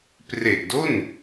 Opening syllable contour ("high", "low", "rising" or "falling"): low